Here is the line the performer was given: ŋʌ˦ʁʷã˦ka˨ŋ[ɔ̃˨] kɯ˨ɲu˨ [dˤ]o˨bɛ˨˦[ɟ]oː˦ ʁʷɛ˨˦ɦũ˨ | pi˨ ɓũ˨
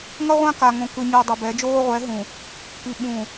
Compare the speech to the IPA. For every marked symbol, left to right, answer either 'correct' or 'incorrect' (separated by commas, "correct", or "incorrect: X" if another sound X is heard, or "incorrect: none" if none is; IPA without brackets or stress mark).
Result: incorrect: õ˨, correct, incorrect: d͡ʒ